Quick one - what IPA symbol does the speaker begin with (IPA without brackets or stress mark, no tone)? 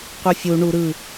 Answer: qʷ